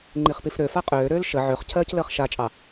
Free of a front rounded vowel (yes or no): no